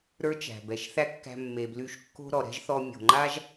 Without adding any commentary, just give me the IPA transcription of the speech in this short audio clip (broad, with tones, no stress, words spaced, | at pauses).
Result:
ɾə˞˥t͡ʃæ̤˩bɛ˩ʃ θæ˥kːæ̤˧ mːe˩bly˧ʃkːo̤˥ ɾɔ˩ɾɛ̤˥ʒθɔ˧ mʲo̤˩ŋ͡ǃa˥ʒ